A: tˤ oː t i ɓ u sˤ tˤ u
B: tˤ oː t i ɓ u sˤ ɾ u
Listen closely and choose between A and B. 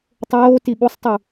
A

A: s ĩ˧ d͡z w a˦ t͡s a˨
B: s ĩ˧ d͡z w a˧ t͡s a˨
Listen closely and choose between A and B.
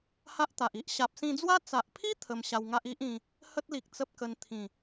A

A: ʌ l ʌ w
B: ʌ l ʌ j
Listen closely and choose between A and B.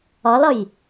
B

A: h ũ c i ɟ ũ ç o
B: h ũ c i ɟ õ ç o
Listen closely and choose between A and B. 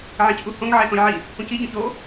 B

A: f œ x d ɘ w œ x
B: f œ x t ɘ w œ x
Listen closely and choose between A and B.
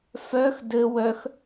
A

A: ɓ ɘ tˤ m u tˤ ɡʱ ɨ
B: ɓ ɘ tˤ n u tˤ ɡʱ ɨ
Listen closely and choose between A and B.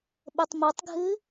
A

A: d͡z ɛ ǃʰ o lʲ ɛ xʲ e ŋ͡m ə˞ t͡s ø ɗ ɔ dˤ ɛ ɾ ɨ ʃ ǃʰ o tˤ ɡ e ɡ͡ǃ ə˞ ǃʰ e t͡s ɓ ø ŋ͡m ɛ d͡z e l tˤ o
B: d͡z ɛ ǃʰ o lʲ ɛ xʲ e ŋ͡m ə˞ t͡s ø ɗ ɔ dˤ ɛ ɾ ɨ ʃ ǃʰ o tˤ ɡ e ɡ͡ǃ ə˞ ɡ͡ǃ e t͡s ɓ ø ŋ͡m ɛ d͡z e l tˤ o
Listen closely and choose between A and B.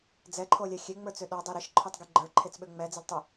A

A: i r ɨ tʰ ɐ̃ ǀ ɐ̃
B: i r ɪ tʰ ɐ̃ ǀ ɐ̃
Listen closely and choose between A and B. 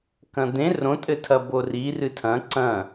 A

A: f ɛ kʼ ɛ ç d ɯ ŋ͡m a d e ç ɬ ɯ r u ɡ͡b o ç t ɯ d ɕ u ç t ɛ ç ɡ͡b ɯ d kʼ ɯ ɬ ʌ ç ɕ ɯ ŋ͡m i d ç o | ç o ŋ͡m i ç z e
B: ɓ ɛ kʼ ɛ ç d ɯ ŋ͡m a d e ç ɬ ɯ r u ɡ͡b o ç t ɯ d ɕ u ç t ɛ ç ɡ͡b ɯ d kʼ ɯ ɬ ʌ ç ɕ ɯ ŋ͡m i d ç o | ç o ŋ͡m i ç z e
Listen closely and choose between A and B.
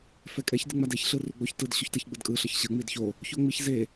A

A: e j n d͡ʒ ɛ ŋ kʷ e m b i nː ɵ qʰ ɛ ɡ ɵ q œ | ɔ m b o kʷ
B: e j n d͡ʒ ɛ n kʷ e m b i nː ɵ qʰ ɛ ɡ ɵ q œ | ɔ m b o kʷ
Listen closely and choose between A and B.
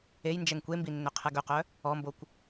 A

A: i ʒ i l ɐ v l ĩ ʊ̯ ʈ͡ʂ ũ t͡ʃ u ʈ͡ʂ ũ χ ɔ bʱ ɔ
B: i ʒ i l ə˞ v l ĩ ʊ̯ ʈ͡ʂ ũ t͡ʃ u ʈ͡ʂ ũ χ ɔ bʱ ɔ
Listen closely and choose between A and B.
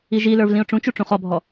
B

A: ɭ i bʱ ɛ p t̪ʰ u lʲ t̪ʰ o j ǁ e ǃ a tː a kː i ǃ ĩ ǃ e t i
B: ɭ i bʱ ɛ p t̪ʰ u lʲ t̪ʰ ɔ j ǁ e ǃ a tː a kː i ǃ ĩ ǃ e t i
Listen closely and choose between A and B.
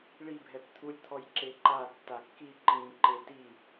B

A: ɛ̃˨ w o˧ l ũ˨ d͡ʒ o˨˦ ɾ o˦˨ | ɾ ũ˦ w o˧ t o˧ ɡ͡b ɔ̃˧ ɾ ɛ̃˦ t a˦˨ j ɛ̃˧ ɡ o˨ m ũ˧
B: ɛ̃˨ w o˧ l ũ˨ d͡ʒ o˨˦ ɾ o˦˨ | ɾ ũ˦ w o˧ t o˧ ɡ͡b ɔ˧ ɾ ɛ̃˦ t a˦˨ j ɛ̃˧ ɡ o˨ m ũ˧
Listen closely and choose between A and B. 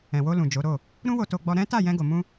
B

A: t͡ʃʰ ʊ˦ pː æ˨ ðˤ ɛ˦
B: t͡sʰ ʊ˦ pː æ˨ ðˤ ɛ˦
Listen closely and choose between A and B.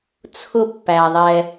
B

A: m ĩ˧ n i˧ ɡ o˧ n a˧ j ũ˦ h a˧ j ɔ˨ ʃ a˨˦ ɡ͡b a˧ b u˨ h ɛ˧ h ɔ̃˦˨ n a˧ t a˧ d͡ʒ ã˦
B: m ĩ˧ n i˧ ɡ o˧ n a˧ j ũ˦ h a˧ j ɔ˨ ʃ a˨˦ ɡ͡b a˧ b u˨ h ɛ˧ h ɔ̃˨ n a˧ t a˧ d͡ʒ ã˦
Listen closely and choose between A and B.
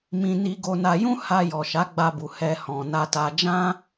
B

